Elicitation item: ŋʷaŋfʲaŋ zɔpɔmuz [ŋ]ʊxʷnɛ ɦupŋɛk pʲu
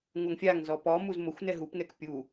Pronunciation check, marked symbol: incorrect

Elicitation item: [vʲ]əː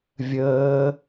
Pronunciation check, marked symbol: correct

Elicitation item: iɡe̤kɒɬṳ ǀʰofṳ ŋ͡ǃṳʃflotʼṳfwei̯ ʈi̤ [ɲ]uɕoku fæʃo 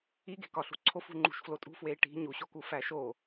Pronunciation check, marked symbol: correct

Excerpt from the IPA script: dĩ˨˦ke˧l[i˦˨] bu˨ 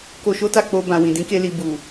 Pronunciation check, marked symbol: incorrect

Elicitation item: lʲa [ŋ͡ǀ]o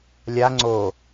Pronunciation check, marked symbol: correct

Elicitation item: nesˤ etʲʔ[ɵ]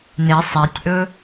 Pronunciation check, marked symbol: correct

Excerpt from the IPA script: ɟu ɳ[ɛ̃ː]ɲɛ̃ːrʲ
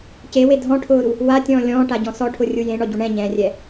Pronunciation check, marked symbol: incorrect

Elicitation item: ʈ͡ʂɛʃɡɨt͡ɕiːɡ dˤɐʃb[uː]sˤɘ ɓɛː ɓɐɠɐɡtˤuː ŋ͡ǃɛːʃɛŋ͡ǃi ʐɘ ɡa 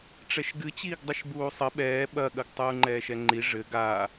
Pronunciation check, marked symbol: correct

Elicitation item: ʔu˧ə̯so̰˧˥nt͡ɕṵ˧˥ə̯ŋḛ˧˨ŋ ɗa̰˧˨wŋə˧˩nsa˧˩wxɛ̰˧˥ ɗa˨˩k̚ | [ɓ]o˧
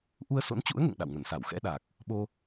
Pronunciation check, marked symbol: correct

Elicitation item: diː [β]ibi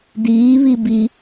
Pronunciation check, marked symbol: correct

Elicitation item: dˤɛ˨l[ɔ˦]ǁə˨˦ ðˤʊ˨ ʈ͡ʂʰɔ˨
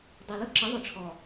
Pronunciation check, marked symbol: incorrect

